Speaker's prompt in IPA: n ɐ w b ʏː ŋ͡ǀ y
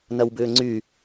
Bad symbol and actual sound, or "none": none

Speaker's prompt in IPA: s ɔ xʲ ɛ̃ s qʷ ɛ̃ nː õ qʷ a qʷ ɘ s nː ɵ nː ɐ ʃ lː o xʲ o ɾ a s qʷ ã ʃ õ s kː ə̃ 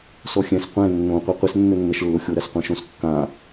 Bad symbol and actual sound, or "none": ə̃ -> ã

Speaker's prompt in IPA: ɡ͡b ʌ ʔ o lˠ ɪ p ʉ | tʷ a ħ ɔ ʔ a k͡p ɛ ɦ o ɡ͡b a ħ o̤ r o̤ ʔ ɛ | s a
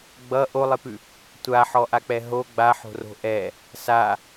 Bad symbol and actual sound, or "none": none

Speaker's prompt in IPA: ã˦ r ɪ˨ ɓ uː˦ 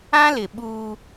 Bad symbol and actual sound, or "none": r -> l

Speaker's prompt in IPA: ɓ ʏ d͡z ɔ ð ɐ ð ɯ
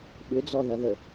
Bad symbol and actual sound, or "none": ɯ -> ə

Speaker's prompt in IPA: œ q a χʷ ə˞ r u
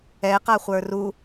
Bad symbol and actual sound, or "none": œ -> ɛ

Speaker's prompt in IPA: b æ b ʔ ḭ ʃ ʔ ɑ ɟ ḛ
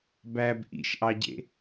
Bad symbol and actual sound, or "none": none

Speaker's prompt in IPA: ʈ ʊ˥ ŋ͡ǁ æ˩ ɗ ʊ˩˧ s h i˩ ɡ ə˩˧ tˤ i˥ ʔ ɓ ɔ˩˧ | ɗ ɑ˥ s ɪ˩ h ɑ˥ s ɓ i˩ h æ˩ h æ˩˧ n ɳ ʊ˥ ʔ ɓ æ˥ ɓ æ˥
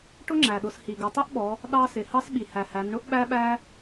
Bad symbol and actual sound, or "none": none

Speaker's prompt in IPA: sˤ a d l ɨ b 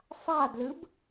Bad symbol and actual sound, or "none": none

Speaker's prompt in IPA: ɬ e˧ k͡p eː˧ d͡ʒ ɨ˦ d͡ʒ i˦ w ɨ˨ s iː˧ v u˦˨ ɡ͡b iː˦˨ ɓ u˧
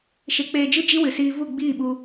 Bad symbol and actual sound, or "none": ɬ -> ʃ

